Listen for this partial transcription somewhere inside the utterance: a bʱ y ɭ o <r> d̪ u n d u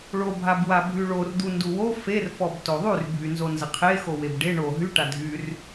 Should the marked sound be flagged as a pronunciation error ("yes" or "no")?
no